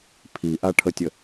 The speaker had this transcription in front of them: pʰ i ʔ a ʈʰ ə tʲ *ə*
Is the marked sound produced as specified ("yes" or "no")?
yes